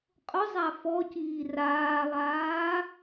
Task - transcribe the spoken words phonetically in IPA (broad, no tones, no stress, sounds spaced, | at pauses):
qʼ ʊ zˤ a f ɔ c iː r aː lˠ aː